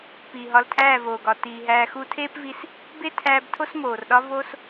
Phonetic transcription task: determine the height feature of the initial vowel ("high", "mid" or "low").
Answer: high